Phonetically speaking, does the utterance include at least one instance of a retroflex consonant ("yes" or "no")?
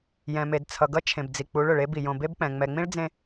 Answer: yes